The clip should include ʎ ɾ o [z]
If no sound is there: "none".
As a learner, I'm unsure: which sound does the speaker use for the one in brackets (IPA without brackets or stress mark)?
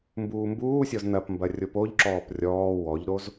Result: z